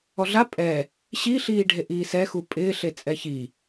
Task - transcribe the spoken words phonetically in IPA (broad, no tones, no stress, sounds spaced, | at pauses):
ɔ ɮ a pʼ ɛ | ɕ i ɬ iː ɖʱ e ʔ iː s ɛ x u pʼ ɪː ɬ e t͡sʼ ɛ ç i